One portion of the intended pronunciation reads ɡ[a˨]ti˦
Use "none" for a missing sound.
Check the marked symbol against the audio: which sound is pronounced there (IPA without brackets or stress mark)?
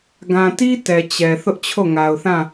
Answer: ã˨